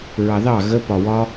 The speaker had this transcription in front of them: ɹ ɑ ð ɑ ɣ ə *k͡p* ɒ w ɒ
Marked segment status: incorrect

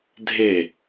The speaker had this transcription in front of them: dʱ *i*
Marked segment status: incorrect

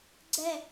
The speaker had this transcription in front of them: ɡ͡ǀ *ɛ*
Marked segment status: correct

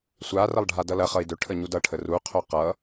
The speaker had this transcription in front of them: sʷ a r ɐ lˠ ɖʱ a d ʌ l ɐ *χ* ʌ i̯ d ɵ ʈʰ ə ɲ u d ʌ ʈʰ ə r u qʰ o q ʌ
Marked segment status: correct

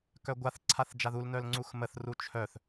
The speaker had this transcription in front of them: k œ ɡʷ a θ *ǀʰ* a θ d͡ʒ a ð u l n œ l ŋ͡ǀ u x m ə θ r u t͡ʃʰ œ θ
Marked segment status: correct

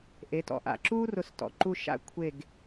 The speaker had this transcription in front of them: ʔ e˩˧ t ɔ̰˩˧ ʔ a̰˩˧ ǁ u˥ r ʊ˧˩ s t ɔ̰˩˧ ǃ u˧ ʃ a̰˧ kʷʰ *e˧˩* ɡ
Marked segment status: correct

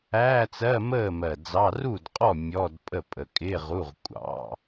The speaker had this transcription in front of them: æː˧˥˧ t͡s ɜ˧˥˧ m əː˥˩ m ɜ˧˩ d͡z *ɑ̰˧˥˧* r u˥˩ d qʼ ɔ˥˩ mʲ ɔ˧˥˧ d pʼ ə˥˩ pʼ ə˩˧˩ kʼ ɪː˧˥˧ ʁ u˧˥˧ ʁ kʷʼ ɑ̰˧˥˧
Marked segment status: incorrect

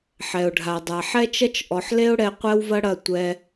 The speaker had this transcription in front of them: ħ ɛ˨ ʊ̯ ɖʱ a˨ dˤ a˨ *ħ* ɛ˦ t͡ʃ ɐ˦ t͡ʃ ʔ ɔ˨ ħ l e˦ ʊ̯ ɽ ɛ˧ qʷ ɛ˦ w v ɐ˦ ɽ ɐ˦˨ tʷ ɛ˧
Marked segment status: correct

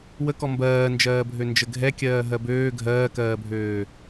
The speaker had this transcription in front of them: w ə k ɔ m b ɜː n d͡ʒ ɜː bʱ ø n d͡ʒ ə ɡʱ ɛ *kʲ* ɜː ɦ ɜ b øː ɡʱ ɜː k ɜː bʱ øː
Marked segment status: correct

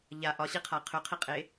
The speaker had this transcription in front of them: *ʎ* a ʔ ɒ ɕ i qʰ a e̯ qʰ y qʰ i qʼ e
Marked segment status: correct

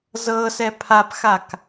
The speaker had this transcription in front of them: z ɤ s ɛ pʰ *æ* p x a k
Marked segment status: incorrect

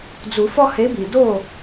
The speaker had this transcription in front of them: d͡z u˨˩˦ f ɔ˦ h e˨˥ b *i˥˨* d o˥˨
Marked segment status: incorrect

